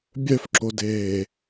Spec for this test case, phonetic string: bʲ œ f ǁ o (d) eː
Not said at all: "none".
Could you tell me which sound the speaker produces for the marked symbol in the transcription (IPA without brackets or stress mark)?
d